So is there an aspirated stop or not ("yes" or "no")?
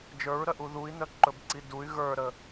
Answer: no